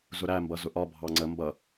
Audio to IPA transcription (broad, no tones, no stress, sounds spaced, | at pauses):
z ʊ ɾ æ m b ʌ z ʊ ʔ ɒ bʱ ɑ ŋ͡ǀ ə m b ʌ